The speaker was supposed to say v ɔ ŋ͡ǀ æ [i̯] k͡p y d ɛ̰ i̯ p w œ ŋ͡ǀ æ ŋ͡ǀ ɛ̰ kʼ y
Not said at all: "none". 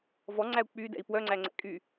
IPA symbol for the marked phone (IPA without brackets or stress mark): u̯